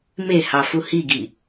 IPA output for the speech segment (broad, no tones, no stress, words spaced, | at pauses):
mehɑfu hiɡi